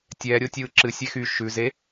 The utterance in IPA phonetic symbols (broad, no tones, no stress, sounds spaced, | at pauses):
tʲ ɛː ɾʲ o tʲ ɯː ǁ ɨ sʲ ɛ x y ʃ ʉ z e